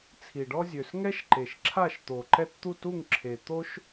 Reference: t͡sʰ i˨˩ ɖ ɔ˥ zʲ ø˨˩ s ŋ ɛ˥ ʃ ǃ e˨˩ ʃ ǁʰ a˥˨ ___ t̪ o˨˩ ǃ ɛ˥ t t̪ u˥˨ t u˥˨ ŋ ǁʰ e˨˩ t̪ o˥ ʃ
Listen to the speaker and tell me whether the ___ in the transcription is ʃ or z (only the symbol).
ʃ